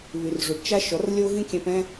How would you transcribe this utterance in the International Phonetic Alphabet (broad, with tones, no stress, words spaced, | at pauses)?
βy˨rʐu˨ɖt͡ʃa˦ ʃɔ˨˦rlʲo˦ɣĩ˦ kʲɛ̃˦pɛ̃˦